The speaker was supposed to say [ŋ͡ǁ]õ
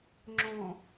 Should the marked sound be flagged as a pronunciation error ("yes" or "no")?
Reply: no